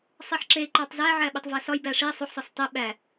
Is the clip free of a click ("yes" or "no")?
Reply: no